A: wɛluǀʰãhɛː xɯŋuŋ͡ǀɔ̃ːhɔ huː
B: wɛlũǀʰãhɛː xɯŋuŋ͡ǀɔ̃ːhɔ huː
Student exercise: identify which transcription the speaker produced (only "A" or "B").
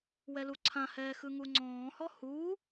A